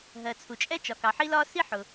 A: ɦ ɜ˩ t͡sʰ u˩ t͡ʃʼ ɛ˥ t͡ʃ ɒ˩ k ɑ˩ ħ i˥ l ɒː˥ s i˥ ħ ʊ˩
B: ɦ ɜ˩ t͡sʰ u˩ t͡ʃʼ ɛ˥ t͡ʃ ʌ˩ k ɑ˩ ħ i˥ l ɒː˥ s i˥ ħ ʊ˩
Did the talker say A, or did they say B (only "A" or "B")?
A